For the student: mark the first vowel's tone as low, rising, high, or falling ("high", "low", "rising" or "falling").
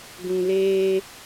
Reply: low